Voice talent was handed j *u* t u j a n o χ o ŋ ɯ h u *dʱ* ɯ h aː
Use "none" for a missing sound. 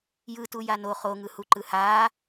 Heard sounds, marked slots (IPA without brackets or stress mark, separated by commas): ɯ, ǃ